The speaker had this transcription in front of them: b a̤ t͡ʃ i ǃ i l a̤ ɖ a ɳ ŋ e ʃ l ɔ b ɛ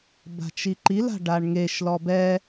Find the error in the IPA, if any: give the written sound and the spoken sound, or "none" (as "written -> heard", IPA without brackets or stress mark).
none